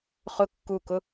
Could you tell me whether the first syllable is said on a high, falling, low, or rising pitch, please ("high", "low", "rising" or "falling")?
high